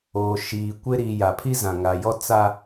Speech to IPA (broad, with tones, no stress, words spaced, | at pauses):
oː˨ ʃiː˨kʷɪ˦ ɾi˨ ja˨pʰi˦ zã˨ŋa˨jɔ˦ t͡sa˦